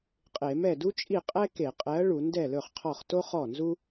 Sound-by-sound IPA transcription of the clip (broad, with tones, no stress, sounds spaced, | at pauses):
qʼ e˧˩˧ m ɛ˥˩ d u˥ t͡ʃʼ i˥˩ qʼ ɛ˥ k e˧˩˧ qʼ ɛ˨˥ ɐ̯ ɭ u˧˩˧ n d ɛ˥˩ l ɵ˥˩ χ qʰ ɔ˥˩ χ t o˥ χ ɔ˥˩ n z u˥